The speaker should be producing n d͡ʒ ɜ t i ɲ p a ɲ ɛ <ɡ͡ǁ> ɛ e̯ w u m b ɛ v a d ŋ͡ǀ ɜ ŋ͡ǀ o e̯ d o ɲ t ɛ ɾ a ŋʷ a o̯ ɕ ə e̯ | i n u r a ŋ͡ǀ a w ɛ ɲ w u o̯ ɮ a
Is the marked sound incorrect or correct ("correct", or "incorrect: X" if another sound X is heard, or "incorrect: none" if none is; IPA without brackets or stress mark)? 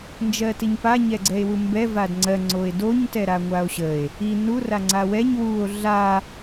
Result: incorrect: ɡ͡ǀ